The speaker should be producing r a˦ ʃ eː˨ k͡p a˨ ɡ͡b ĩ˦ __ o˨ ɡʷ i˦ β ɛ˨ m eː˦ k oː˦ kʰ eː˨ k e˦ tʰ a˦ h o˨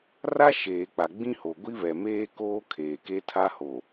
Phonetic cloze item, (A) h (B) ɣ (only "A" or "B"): A